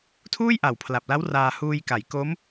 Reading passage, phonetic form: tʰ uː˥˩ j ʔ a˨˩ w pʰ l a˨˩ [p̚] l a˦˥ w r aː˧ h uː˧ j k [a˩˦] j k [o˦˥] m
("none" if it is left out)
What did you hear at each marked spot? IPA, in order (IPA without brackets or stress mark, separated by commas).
p̚, a˩˦, o˦˥